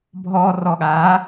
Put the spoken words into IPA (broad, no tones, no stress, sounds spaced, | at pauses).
bʱ ɔ r ɔ ɠ a